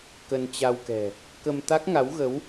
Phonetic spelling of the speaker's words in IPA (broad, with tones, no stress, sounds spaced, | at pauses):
k ə˧ n t͡ɕ a˧ w k ɛ̤˨˩ | k ə˧ m t̪ a˦˥ k̚ ŋ a˨˦ w ɣ ə˨˦ w